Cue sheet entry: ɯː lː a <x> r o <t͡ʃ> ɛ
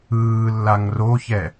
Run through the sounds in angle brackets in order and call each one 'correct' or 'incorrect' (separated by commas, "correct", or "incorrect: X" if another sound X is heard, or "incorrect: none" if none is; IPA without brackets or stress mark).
incorrect: ŋ, incorrect: ç